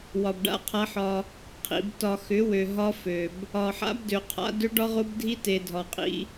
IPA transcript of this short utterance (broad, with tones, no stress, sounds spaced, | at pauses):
w ɒ˨ b ɖ a̰˦˨ qʰ a˦ ħ ɒ˦ | qʰ ḭ˨ b t ɒ˨ x ʏ˨˦ w ø˨ ɦ ɒ˦ f ø˨ b | ɒ˨ ħ a̰˦ b d ø˨ qʰ a̰˦ d ø˦ ɖ ɒ˦ ʁ o˦ b dʱ i˦ t e˨ dʱ ɒ˨ qʼ ḭ˦